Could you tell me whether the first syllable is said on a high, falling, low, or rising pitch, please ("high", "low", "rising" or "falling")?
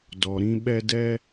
low